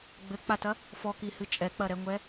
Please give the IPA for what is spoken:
ɡ͡b ɘ k͡p a t ɐ | f ɔ k i h ɨ t͡ʃʼ ɛ k͡p ɐ ɾ ɛ ŋʷ ɛ

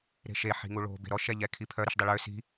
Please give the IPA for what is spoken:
ɾ e̤ ʃ e ħ i̤ ŋ u ɭ o̤ b e̤ ɾ ɔ ʃ ɛ ʎ ɛ kʰ i pʰ œ ɾ i ʃ dˤ ɪ ɭ ø s i̤

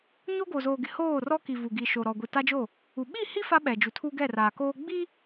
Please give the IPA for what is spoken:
ɲ o˦ ɡ o˨ z oː˨ ɡ ɪ˨ h oː˦˨ r ɔ˦ k i˨ v u˨ ɡ i˨ ʃ o˨ ɾ ɔ˨ ɡʷ i˨ t a˦ d͡ʒ o˦˨ | u˨ ɓ i˦˨ h i˦ f a˦ ɓ ɛ˨ d͡ʒ u˨ tʰ u˦ ɡ ɛ˦˨ r aː˨ k oː˦ ɡ͡b i˦

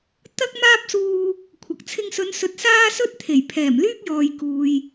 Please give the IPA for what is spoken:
t̪ ɐ˥ k̚ m aː˥ p̚ s uː˧ | kʷʰ ɐ˨ k̚ t͡sʰ ɪ˧ ŋ s ɵ˨˧ n s ɵ˨˥ t̚ s aː˥ s ɵ˥ t̚ t̪ʰ e˨˩ j pʰ ɛː˨˩ m l yː˥ k̚ j ɔː˨ j k uː˨ j

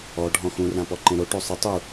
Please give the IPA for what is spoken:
ɔ ɖʱ ɔ̃ x ũ r ã p ɔ ǃ ẽ ɾ o ʈ o sˤ ɪ tˤ u

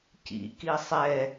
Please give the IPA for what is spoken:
c ḭ k i sˤ ɛ

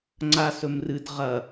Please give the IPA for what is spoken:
ŋ͡ǀ a s ɵ m r ɨ d ʁ ɐ

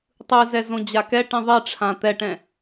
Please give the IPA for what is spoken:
tˤ ɯ z ɛ z õ d͡ʑ a k ɛ ʈ ĩ ðˤ i ʈ͡ʂʰ ã t̪ ɛ ʈ ɛ̃

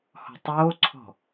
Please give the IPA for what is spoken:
h ɔ̤ tˤ oː ǀʰ ɔ̤

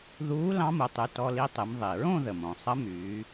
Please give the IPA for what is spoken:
ð uː˧˥ l ɑ̃˧˥ m u˩˧ tˤ y˩˧˩ t ɔ˧ l i˧˥ tˤ ɨ˩˧ m ðˤ i˩ ɹ õ˥˧ ð ə˩ m õ˩ sˤ ə˧˥ m yː˩˧

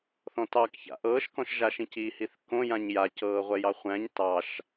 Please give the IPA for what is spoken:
θ ɔ̃ t ɑ k ç a̰ ʔ ɤː ʃ k ɔ̃ ʃ ʒ a ʃ ĩ c i h i θ k õ j ã ɲ j a c ɤː ʁʷ ɛ j ɑ χʷ æ̃ ɲ t ɑ ʃ

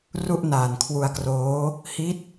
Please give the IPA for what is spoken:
r u˥˩ ʔ n aː˨˩ n kʰ w u˧ a̯ k r oː˦˥ | h i˦˥ t̚

